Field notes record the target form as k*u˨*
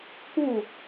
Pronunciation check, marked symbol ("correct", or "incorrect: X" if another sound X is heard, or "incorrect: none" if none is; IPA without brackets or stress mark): incorrect: u˦˨